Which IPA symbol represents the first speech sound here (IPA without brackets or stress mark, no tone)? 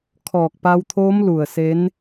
kʰ